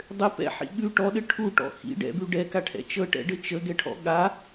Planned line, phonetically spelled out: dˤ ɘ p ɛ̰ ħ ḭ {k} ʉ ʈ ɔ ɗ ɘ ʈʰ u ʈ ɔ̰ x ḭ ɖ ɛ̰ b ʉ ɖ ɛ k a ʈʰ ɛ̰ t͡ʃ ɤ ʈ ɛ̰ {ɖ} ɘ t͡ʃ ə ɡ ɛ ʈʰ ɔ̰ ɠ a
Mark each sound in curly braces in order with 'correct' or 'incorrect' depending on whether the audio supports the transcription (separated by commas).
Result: incorrect, correct